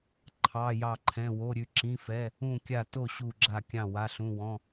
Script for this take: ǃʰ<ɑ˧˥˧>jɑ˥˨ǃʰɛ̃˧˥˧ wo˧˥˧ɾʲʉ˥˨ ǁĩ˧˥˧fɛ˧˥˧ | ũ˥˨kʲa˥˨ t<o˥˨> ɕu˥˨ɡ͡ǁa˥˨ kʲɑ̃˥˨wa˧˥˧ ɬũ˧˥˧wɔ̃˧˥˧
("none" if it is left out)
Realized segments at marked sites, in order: ɑ˧˥˧, o˥˨

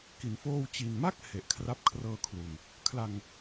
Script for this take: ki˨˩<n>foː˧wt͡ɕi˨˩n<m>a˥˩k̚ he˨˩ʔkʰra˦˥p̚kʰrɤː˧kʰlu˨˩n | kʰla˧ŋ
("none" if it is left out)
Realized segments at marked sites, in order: n, m

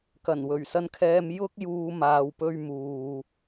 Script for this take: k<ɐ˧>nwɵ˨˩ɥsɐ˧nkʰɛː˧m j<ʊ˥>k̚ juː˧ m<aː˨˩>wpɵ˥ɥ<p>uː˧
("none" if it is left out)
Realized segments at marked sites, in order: ɐ˨˩, ʊ˥, aː˧, m

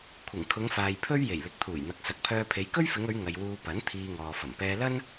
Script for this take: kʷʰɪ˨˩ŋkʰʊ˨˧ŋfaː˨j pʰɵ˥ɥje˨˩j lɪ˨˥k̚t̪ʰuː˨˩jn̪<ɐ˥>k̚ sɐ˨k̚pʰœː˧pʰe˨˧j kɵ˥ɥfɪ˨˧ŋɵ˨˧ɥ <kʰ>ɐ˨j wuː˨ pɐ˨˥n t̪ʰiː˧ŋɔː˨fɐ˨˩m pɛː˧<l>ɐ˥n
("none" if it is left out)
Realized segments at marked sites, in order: ɐ˨, ŋ, l

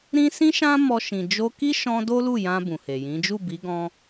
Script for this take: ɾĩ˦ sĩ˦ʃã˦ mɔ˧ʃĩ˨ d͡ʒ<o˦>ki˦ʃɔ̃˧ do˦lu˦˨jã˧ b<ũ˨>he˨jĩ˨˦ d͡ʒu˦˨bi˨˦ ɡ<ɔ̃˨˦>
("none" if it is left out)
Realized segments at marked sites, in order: o˧, ũ˨, ɔ̃˦

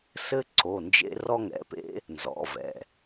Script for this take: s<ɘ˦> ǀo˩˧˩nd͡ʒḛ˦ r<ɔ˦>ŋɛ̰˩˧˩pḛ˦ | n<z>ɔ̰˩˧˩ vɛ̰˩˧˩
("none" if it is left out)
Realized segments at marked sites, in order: ɘ˦, ɔ˦, z

